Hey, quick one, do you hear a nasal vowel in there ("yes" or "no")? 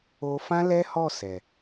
yes